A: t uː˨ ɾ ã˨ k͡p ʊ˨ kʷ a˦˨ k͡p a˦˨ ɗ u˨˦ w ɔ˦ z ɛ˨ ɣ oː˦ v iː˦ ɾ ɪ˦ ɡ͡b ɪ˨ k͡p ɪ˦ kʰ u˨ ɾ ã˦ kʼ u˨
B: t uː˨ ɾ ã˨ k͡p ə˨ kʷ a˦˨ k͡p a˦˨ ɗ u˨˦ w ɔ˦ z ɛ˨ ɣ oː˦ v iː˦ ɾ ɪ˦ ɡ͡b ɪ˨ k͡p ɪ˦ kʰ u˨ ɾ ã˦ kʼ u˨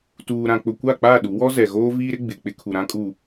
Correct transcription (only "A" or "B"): A